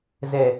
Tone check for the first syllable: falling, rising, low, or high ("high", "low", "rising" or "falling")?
low